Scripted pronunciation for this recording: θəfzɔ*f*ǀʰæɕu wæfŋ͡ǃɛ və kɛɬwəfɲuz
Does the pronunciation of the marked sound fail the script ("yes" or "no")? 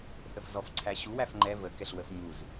no